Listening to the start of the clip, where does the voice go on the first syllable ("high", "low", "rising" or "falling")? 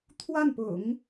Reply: falling